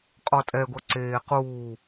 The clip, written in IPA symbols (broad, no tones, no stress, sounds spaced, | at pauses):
qʼ ɔ tʼ ɛ ɡʷ ɐ ǀ eː q uː